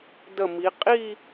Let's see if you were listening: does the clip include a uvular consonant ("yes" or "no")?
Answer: yes